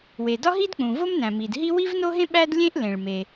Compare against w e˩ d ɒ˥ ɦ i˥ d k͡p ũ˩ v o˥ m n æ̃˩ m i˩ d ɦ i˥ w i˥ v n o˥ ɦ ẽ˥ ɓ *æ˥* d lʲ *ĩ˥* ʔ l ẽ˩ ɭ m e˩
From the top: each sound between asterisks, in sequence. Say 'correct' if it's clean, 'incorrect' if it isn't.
correct, incorrect

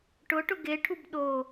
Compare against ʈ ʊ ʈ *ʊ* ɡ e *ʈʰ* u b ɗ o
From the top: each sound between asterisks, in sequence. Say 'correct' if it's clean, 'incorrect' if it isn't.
correct, correct

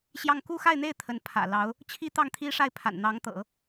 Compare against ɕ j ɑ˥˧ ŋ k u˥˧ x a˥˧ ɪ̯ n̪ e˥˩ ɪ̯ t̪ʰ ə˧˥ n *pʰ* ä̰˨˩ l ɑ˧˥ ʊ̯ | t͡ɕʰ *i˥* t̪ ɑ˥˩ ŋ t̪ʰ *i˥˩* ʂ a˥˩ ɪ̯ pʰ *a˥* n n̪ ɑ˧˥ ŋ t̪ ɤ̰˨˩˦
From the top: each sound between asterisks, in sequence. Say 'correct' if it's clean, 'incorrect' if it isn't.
correct, correct, incorrect, incorrect

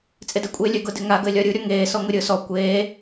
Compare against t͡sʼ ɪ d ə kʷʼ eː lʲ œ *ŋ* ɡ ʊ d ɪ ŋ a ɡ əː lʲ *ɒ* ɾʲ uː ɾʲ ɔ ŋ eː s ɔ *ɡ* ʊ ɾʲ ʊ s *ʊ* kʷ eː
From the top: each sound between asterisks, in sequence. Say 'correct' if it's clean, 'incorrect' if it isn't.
incorrect, correct, incorrect, incorrect

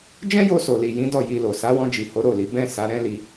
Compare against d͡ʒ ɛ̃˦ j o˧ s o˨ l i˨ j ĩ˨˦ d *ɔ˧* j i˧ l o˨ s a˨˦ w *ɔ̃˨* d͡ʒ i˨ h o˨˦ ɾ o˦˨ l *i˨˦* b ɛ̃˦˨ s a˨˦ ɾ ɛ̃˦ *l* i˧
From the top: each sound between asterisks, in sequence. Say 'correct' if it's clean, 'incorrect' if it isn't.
incorrect, incorrect, correct, correct

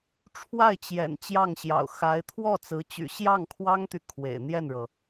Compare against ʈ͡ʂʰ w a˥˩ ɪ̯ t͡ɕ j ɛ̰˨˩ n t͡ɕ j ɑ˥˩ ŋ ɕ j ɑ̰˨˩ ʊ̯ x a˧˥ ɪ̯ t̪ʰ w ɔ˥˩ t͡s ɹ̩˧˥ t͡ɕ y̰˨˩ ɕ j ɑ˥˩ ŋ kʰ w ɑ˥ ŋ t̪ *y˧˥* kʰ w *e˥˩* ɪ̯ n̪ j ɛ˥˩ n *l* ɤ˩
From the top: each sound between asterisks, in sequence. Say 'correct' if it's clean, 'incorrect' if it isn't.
incorrect, incorrect, incorrect

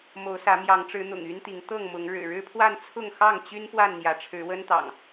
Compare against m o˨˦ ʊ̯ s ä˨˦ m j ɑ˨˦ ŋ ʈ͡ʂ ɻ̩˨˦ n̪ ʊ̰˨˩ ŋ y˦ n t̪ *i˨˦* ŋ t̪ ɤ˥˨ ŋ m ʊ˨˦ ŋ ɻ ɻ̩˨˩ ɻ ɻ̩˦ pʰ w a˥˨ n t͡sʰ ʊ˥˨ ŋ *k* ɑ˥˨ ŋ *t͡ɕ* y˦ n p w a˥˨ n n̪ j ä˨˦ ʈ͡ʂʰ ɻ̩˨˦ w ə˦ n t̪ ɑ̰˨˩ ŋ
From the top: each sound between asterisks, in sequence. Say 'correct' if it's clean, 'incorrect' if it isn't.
correct, incorrect, correct

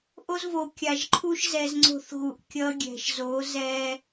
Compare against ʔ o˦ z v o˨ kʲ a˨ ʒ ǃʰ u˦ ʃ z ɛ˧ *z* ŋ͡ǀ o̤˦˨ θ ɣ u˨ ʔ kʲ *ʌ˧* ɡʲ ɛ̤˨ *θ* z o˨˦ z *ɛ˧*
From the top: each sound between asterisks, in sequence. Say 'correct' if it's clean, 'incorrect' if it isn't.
correct, correct, incorrect, incorrect

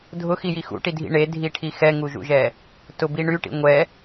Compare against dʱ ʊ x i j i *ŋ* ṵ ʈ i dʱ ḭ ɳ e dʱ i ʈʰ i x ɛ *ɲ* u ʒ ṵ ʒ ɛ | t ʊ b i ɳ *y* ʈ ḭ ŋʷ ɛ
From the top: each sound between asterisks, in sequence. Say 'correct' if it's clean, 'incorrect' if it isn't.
incorrect, incorrect, correct

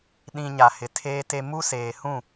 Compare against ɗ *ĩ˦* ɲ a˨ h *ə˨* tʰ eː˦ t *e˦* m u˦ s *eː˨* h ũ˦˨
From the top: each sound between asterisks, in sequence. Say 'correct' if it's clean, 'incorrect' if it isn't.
incorrect, incorrect, correct, correct

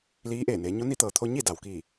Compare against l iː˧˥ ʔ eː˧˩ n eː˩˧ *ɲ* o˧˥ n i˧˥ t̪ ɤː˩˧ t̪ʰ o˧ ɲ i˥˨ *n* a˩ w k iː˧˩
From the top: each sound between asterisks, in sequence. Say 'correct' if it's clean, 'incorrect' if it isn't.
correct, incorrect

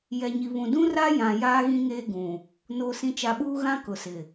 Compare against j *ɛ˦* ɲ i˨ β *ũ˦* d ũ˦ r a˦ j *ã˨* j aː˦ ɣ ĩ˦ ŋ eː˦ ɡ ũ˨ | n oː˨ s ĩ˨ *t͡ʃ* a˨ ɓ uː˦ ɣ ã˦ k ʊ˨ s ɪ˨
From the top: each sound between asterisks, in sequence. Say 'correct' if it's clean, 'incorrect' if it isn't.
incorrect, incorrect, correct, correct

